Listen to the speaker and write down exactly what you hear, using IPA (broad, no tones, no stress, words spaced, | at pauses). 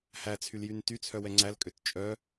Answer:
hæt͡sʰyljyn tyt͡sʰœwɛ ŋ͡ǀælkʼøt t͡ʃʼœ